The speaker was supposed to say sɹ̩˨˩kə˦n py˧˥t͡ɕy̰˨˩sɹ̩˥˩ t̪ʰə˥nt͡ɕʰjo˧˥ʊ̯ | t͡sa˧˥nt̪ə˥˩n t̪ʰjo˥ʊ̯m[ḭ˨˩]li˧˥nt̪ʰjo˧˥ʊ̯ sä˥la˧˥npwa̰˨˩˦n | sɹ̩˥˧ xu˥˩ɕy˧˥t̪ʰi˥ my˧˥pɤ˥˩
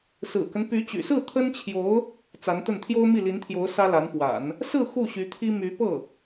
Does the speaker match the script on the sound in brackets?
no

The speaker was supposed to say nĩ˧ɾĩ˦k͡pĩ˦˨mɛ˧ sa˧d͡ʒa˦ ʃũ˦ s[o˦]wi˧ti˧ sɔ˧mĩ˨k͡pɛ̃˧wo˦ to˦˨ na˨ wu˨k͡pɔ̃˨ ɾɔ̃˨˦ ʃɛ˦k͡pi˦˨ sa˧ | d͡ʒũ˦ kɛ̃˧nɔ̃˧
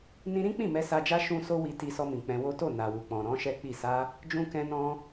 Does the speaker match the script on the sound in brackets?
yes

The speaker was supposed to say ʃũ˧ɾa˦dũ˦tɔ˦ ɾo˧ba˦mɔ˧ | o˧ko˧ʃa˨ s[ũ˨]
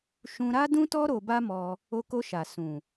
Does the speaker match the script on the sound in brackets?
yes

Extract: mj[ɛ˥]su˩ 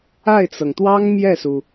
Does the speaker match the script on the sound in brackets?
no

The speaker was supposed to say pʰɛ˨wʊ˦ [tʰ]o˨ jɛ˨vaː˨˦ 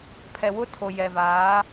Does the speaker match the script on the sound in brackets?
yes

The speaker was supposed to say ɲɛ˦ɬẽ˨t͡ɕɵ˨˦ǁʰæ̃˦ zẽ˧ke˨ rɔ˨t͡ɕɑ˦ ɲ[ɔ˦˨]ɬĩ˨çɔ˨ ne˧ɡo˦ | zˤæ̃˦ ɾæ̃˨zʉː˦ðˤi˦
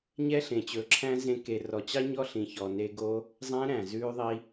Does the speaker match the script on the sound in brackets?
no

